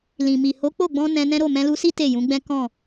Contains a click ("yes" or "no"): no